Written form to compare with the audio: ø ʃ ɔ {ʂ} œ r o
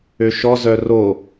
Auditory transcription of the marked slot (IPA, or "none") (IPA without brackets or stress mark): z